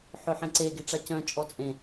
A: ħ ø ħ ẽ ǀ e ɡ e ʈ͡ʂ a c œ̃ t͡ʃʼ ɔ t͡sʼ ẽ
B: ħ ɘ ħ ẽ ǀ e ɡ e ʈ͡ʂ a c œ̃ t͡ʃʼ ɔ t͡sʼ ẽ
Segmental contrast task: A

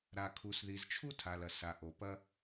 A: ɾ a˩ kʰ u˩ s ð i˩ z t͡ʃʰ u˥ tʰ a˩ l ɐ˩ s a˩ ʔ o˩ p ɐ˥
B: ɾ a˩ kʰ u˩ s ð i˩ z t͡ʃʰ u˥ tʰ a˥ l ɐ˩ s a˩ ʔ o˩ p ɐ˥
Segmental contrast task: A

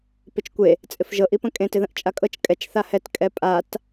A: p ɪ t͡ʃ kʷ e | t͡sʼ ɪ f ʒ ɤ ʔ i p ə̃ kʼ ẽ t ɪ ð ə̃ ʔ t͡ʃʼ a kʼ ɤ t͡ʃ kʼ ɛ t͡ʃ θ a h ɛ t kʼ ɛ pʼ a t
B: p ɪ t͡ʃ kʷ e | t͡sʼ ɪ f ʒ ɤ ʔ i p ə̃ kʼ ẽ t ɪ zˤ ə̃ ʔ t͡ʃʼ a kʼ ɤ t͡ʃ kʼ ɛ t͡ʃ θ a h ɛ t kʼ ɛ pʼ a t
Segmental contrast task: A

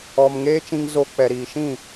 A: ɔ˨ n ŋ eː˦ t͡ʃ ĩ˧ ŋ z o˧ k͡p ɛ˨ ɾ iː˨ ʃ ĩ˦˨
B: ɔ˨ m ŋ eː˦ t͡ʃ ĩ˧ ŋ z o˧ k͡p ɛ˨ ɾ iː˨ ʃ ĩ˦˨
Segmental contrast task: B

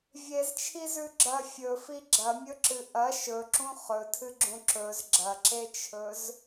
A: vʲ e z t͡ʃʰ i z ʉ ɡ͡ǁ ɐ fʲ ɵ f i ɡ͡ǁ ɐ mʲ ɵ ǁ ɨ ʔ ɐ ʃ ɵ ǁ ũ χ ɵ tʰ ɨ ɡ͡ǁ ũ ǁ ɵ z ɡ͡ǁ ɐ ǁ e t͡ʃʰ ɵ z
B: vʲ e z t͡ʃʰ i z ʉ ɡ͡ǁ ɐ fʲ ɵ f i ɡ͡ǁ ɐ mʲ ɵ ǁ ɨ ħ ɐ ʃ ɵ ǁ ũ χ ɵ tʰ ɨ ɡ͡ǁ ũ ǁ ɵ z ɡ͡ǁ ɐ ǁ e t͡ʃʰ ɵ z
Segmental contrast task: A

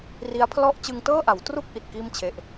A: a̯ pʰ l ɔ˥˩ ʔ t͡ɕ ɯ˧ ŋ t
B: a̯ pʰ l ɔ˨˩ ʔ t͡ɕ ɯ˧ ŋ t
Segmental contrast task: A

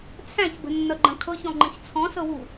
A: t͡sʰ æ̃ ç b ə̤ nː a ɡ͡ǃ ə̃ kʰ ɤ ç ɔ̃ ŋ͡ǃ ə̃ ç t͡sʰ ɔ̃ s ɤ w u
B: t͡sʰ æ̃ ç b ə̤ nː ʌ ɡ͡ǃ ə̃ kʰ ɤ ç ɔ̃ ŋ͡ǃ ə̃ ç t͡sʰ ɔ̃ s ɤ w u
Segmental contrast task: B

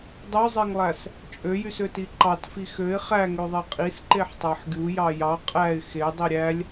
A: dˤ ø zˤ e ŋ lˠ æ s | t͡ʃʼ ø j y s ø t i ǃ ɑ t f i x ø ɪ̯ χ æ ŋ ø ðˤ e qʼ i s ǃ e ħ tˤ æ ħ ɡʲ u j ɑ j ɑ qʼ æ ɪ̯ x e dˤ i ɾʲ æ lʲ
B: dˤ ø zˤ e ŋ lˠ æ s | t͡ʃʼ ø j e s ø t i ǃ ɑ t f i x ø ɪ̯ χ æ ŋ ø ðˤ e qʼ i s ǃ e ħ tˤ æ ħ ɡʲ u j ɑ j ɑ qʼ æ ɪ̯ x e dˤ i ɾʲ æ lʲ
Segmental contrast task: A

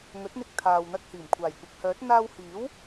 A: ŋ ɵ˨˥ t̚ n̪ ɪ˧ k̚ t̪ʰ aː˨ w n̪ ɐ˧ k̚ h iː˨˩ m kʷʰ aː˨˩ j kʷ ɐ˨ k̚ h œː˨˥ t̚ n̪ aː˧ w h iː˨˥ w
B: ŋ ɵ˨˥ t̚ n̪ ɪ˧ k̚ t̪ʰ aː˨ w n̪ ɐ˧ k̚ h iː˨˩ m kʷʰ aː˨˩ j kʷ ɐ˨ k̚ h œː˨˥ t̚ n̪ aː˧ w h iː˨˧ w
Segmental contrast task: A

